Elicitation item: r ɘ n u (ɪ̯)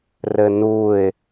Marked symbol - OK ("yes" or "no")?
yes